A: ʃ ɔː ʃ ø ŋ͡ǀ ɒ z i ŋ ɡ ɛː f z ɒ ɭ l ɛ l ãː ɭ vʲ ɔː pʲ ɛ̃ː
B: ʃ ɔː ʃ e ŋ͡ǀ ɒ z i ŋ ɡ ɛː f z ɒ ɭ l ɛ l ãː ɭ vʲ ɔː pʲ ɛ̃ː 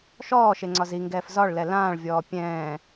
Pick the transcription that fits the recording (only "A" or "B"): B